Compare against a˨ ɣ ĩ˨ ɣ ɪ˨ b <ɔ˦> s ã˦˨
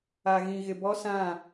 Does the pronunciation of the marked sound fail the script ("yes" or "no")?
no